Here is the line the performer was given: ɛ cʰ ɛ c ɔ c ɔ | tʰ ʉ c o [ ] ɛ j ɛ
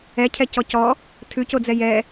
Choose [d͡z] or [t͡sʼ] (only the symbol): d͡z